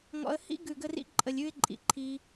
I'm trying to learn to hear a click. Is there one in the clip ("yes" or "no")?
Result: yes